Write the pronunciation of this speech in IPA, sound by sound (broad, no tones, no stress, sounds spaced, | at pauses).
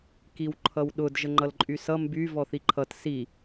k i w ǃʰ ʌ w ɗ ʊ d ʒ ə ŋ͡ǃ ʌ l ǃʼ y s ʌ m b y v ɔ θ i ǃʰ ʌ t s i